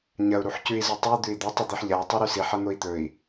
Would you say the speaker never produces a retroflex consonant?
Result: yes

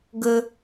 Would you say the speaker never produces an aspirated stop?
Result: yes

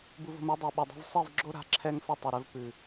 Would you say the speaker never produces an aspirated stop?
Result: no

